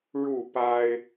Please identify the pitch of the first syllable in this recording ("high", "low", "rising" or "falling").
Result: falling